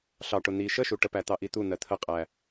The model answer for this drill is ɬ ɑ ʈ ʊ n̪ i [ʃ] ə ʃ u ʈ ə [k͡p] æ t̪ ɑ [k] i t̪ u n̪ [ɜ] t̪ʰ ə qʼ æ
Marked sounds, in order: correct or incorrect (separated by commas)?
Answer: correct, incorrect, incorrect, correct